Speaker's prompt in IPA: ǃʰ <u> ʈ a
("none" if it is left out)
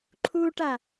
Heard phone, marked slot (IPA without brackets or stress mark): u